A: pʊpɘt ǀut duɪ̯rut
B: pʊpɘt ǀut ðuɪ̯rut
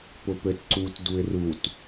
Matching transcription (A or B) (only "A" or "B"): A